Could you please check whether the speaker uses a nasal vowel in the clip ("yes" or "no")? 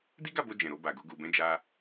yes